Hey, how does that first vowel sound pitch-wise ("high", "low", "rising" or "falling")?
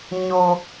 low